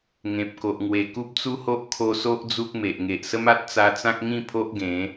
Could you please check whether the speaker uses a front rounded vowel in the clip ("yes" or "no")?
no